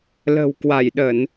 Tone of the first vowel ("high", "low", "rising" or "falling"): low